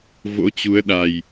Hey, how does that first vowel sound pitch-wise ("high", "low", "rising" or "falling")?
rising